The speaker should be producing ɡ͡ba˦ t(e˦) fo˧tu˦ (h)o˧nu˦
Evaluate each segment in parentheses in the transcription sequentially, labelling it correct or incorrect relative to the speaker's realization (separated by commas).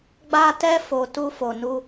incorrect, incorrect